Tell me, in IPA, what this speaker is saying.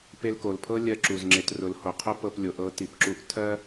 pe˧lko˩lpʰɤ˥ lʲɜ˧ǁu˩zŋ͡ǁe˩˧t rʊ˩˧lho˩qʰʊ˥ pɤ˧plʲo˩˧ʔɤ˧˥ ti˩pǁu˧˥ʔ tʰɜ˥

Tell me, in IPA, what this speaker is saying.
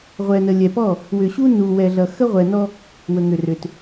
ʁʷɛ˨nə˨lʲɛ˨pɔ˦˨ | wʏ˨ɕu˦ nu˨wɛ˨ɮʌ˨ xə˦ʁʷɛ˨nɔ˦ | wə˨ŋʏ˨rʏ˨t

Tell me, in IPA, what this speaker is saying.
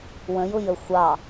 wə̃jʊjə xʷɑ

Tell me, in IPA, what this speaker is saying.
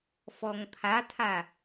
fɔŋpʰatʰa

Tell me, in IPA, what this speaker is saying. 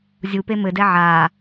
zʲupe mɘdɛ ʕa

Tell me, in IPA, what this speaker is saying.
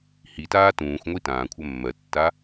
hitaː tũːxʷŋʷi tãːkʷʰɜ mːɜtːa

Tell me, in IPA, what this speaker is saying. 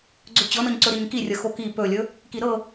ɡ͡ǀɵt͡ɕɤnɤɲǀɵ ɾiɲki rʲəxoki pɵlʲɵ | kiɾɤ

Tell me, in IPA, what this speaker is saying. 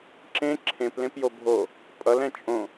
ǁẽ ǁʰẽplẽp jobʱo | pʼʌlɛ̃ t͡ʃʼõ

